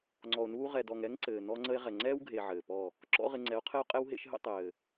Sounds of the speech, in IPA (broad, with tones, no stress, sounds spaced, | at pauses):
ŋ͡ǀ ɔ˨ o̯ n uː˧ ʁ ɛ˨ d ɔ˨ ŋ ɛ˦ ŋ ǀ ɘː˨ n ɔ˧ ŋ͡ǀ ə˧ e̯ ʁ ɛ˨ ŋ͡ǀ ɛː˦ w ɡʱ e˨ ʕ ɘː˨ p ɔ˦˨ | ǁ ɔ̰˦ ʁ ɪ˧ ŋ͡ǀ ɛ˨˦ o̯ qʰ ɘ˦ o̯ qʼ ɛ˦ w ɦ ḛ˧ ʃ ɦ ə̰˧ tˤ ɘː˨